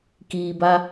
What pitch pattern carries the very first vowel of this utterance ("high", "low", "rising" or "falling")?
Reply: low